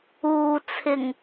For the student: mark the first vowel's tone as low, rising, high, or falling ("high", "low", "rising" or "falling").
low